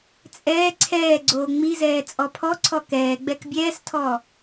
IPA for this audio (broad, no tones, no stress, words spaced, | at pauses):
t͡sʼɛː ǀʰɛː ɡ͡ǀoːŋ͡mizɛː t͡sʼɔpʰɔǀʰɔ kɛːɡ͡bɛk bʲɛːstʰɔ